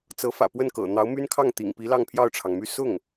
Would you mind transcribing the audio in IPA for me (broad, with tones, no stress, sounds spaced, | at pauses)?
t͡s ɤ˧˥ f ä̰˨˩ p w ə˥˩ n k ɤ̰˨˩ n̪ ɑ˧˥ ʊ̯ m y˥ n kʰ ɑ˥˩ ŋ t̪ ḭ˨˩ ŋ p i˧˥ l ɑ˥˧ ŋ pʰ j ɑ˥˩ ʊ̯ ʈ͡ʂʰ ɑ˩ ŋ m y˥˧ s ʊ˥˩ ŋ